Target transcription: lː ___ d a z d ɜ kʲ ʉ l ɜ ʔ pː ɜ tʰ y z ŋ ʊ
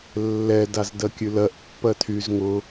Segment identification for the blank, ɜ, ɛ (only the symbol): ɛ